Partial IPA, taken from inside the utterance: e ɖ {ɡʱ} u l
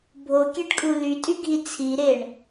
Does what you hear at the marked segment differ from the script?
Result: yes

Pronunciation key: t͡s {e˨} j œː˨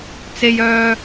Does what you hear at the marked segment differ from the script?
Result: no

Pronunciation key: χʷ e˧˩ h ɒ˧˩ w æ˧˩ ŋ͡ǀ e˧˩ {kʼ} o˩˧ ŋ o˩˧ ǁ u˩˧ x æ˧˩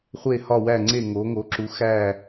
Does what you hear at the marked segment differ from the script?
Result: yes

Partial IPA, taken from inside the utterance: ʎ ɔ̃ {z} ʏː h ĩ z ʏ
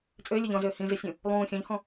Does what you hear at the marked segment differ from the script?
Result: no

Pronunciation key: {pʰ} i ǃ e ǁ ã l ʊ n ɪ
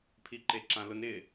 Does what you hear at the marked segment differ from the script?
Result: no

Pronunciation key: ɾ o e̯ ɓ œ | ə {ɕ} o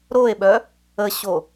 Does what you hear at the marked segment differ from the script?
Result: no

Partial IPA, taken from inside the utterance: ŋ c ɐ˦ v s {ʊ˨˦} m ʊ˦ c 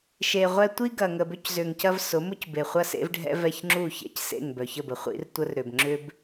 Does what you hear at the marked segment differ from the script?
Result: no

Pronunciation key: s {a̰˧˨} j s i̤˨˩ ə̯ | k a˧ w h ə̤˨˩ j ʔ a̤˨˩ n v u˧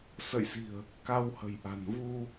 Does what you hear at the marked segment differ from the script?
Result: yes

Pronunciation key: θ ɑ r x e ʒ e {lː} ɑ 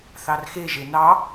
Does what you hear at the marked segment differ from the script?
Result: yes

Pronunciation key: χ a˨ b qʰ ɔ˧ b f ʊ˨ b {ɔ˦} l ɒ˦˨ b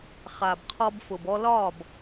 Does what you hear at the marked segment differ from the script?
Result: yes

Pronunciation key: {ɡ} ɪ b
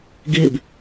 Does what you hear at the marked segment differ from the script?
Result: no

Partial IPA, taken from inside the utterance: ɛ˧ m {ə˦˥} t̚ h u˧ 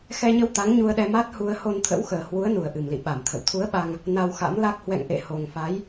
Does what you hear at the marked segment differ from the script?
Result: yes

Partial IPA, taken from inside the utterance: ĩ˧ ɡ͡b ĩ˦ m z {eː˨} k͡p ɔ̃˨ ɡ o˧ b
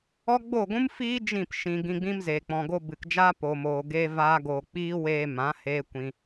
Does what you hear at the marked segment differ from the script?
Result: no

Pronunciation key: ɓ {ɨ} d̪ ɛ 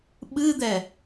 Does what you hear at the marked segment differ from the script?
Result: no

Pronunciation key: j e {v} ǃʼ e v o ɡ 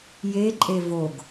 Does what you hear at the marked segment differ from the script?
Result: yes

